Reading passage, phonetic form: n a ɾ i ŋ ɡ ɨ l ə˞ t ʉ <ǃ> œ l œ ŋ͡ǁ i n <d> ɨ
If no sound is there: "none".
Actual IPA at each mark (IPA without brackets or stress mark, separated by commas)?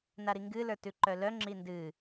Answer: ǃ, d